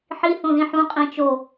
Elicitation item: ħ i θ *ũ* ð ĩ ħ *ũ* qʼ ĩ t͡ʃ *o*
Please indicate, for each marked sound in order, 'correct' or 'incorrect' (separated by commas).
incorrect, correct, correct